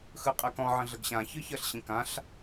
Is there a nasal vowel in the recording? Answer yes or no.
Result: yes